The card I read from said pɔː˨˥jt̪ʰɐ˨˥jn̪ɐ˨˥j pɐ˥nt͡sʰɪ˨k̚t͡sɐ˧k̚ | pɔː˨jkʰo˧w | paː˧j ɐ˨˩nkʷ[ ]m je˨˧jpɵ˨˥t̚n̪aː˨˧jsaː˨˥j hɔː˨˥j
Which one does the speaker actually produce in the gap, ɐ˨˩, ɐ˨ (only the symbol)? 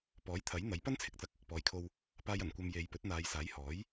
ɐ˨